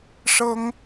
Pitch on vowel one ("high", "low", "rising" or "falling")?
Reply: high